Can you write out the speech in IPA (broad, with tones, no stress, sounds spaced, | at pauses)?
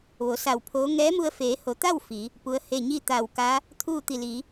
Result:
ʋ o˩˧ s a˧˩ w pʰ oː˧˥ ŋ ɛː˧˥ m u˧ ə̯ f eː˩˧ h o˩˧ t̪ a˥˨ w f i˩˧ | p u˧˥ ə̯ h e˥˨ ɲ i˥˨ t̪ a˧˩ w k a˧˥ | t̪ʰ uː˥˨ t̪ i˧˩ l iː˩˧